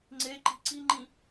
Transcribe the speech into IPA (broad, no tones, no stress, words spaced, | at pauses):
ŋ͡ǀeǃi̤ ǀiŋ͡ǃĩ